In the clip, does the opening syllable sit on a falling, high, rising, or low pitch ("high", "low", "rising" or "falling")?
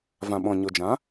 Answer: low